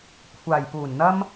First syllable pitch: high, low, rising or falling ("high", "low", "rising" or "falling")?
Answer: low